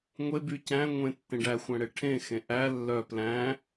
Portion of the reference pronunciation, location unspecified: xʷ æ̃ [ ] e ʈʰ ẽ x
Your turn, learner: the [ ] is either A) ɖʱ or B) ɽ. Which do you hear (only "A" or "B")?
B